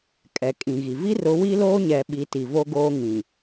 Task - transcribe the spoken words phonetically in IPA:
kʼ ɛ˨ kʼ ĩ˨ ɣ i˨ v i˦ r ʊ˨˦ w i˦ l oː˦ ɲ ɛ˨ ɓ i˨˦ t i˨ v o˦ ɡ oː˦ ŋ ĩ˨

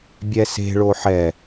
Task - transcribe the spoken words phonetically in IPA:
bʲ ɛ s e̤ ɭ o ħ ɛ

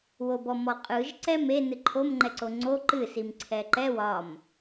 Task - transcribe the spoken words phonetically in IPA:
w o b ɔ m ɔ qʼ ɯ ʒ ǀ ɛ m e n ɨ ǃʰ o m ŋ͡ǃ ɛ ǀ o ŋ͡ǀ o ǃ ɨ s i m ǀʰ ɛ ǃ ɛ w ɒ m

